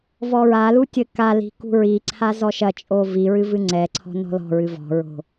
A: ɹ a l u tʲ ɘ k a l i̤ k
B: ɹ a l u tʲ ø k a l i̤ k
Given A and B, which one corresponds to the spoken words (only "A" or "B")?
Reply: A